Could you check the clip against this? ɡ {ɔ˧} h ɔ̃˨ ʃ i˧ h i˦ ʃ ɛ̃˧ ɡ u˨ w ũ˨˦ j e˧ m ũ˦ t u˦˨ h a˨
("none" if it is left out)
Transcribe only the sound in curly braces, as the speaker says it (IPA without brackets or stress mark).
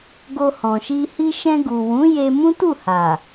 o˧